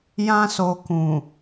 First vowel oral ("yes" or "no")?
no